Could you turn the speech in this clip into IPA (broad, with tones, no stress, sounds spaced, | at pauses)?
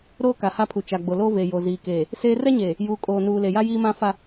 ɾ oː˦ k a˨ h a˦ pʰ u˨ t͡ʃ a˨ ɡ͡b o˨ l o˦ v e˨ j o˨ z iː˨ k eː˨ | s eː˦ r ɛ˦ ɲ eː˨ | j uː˨ kʼ oː˨ n uː˨ l e˨ j a˦ j iː˦ m ã˦ f a˦